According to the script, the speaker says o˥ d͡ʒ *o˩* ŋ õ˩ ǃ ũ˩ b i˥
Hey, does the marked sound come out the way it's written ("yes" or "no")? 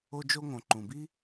no